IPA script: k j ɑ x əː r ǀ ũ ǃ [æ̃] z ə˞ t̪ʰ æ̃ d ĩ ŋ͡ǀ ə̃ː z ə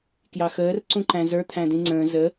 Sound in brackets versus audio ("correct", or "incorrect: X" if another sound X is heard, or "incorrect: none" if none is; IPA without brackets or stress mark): correct